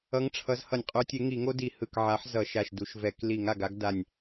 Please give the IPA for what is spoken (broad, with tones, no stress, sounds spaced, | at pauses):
ʌ˨˥ ŋ ʈ͡ʂʰ ʌ˨˥ z h ʌ˧˩˧ nʲ qʼ u˨˥ tʲ e˨˥ ŋ i˧˩˧ ŋ o˦ d i˧˩˧ h ɯ˧˩ k ʕ a˨˥ ħ z ʌ˧˩˧ ʃ a˧˩ ʃ d u˧˩˧ ʃ v ɛ˧˩˧ k l i˧˩˧ ŋ a˧˩ ɡ a˦ ɡ d a˧˩ nʲ